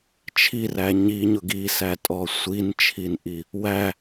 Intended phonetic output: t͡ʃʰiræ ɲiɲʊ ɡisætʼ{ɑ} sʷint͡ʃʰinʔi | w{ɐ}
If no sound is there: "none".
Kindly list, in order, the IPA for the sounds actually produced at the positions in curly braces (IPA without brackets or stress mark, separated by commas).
ɔ, æ